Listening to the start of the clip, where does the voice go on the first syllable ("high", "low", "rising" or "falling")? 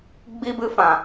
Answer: high